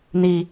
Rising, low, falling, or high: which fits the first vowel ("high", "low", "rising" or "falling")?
low